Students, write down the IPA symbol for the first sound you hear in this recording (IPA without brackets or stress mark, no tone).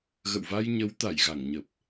ɣ